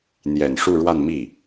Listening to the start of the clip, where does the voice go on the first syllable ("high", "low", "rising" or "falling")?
low